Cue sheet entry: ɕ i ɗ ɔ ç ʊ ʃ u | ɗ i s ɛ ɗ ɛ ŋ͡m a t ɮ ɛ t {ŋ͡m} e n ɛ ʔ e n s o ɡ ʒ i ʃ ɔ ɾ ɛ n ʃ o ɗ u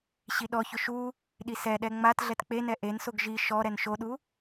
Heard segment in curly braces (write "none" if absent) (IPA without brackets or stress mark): k͡p